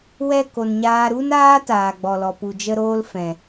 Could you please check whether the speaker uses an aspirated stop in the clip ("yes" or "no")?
no